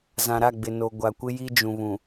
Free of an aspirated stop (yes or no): yes